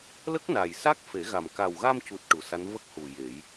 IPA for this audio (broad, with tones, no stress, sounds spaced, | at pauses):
l ə˦˥ k̚ n a˨˩ j s a˦˥ k̚ f e˨˩˦ ɣ a˨˩ m k a˨˩ w ɣ a˧ m c u˨˩ t̚ ʈ u˨˩ s a˧˥ n v ə˦˥ k̚ h u˨˩ j e˨˩˦ j